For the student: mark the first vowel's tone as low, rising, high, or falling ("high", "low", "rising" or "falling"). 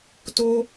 high